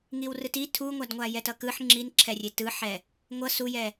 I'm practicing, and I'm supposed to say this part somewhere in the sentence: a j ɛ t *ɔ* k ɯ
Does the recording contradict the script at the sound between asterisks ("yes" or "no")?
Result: yes